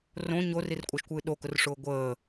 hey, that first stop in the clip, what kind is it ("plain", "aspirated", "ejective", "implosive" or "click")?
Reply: ejective